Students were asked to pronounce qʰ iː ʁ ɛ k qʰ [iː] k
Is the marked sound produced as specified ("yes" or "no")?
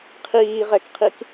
no